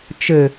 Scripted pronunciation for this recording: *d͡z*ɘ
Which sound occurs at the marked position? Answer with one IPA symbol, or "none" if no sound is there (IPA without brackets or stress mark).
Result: t͡ʃ